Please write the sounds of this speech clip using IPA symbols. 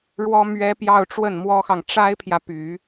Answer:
ɻ w ɔ˥ m ɥ ɛ˥ p j ɑ˥˧ ʊ̯ ʈ͡ʂ w ə˥˩ n m w ɔ˥ x ɑ˨ ŋ ʈ͡ʂ a˥ ɪ̯ pʰ j ä˨ p y˨˩˦

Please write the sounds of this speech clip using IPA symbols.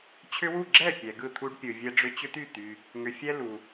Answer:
t͡ɕʰ ʏ˦ w u˥˩ ɡ͡ǁ ɛ˥˩ pʲ ɛ˨ ɡ ɯ˥˩ t̪ʰ u˦ ɖ pʲ ɯ˨ vʲ ɛ˦ ɖ͡ʐ ʏ˦ t͡ɕ ʏ˦ t̪ y˥˩ t̪ y˨ | ŋ ʏ˨ fʲ ɛ˦ l u˨

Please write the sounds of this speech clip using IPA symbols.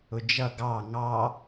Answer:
ʊ d͡ʒ ʌ ɡ ɑ ŋ ɑ

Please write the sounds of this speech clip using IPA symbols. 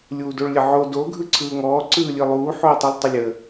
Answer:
lʲ uː d o ɭ lʲ ə ʕ o d o ɡʱ ɯ ǀʰ ɯː ŋ ɔː ǀ ɯː lʲ ɯ lˠ uː ħ oː tˤ u lˠ tˤ ə lʲ ə

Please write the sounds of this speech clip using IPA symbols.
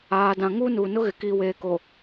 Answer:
aː˨ d ã˨ ŋ uː˦ n uː˨ n ʊ˦ ɣ ɪ˨ k iː˨ w eː˨ k o˨

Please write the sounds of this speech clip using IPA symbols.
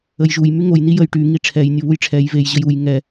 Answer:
ə j ʒ u j m y ŋ o j n i j ə j ʈ y ŋ i ʈ͡ʂʰ ɛ j nʲ o β u j ʈ͡ʂʰ ɛ j v e j ʑ ə j u j ŋ ɛ

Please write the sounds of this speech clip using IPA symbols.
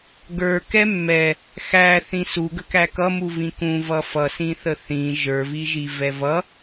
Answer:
ɡ ə˞ k ɛ mː ɛ | x æ θ ĩ s u ɡ ə k æ k ʌ m u v ĩ k ũ v ʌ f ʌ s ĩ θ ə θ ĩ ʒ ə˞ v i ʒ i v ɛ v ʌ

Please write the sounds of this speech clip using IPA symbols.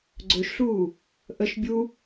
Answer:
ɡ͡ǀ ɵ ʃ ɬ uː | ʔ ə ʃ bʲ u

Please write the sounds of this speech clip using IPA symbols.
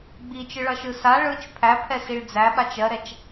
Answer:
ɡ͡b i t͡ʃ ɯ ɭ ʌ ʃ ɯ s a ɭ ɯ t͡ʃ pʰ æ pʰ ɛ s i ɭ d͡z æ ɓ a t͡ʃ ɜ ɾ ɛ t͡ʃ

